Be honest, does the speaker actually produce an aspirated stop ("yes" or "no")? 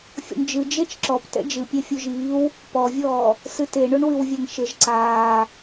no